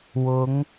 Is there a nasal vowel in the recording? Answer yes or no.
no